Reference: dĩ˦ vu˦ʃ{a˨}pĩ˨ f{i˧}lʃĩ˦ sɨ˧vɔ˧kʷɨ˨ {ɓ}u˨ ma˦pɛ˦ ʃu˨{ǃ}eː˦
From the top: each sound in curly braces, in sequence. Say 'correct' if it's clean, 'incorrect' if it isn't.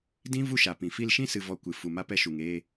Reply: correct, correct, incorrect: f, incorrect: ŋ

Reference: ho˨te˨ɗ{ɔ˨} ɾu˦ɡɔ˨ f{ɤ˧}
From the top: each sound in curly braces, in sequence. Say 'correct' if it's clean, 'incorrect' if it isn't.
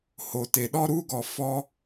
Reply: incorrect: ɔ˦, incorrect: ɔ˧

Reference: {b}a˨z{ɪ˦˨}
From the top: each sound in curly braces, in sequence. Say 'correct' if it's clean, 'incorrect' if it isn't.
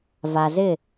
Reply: incorrect: v, correct

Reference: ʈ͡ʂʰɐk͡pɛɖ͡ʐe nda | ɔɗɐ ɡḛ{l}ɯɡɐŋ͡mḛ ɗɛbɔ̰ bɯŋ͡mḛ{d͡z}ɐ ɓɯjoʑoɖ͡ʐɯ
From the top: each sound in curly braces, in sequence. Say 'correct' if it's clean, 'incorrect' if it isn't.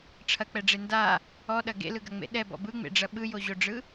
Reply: correct, incorrect: ɖ͡ʐ

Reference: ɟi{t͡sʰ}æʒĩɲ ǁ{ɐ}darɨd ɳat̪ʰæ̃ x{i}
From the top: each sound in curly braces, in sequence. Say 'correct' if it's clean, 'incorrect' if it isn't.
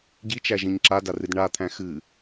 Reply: incorrect: t͡ʃ, incorrect: a, incorrect: ɨ

